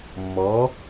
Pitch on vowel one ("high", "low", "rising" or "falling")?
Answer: rising